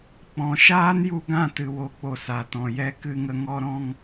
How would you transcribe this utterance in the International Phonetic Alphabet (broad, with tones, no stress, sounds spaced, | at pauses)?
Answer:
k͡p ɔ̃˨ ʃ aː˦ n j u˧ ɡ ã˦˨ t ɨ˨ w o˨ k͡p o˨ s a˨ t ɔ̃˨ j ɛ˧ k ɨ˧ ŋ ə˧ ŋ ɔ˧ ɾ ɔ̃˧ ŋ